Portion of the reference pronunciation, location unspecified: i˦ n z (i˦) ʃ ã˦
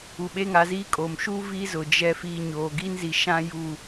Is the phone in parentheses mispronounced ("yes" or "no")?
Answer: yes